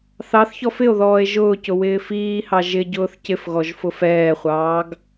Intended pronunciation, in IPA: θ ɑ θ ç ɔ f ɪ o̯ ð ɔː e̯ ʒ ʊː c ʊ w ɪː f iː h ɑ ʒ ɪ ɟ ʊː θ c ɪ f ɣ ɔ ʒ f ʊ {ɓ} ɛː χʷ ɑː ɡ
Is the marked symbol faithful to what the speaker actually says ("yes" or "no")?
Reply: no